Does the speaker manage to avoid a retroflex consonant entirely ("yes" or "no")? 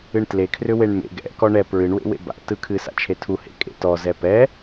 no